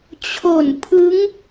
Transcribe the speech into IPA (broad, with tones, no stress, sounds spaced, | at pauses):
t͡ɕʰ o˨˩ n pʰ ɯ˦˥ ŋ